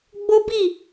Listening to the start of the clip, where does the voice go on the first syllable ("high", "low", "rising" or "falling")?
high